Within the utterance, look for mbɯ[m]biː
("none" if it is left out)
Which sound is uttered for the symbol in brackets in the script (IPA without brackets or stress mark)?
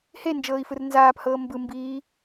m